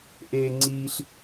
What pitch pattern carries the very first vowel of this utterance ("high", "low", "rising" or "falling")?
high